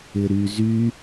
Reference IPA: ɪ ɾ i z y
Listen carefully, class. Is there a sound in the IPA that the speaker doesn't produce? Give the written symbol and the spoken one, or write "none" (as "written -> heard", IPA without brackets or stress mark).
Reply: i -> y